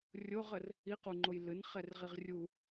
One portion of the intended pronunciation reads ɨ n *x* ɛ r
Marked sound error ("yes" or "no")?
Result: yes